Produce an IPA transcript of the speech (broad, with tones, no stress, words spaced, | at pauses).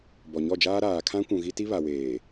bɔ˨ɲɔ˦˨d͡ʒaː˦ ɾaː˨kʰã˦ kʷũ˨ɣi˦ ti˦βa˨weː˨